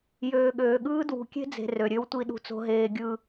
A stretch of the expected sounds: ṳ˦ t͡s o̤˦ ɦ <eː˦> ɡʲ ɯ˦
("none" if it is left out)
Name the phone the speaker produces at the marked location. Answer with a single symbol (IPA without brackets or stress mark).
eː˦